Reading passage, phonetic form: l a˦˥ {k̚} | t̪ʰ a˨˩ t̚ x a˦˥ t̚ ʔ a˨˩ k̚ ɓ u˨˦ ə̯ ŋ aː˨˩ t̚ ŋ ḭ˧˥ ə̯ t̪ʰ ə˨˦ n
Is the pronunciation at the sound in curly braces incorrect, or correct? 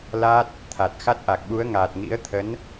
incorrect